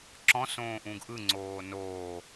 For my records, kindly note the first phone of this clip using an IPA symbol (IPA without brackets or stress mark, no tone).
ǁ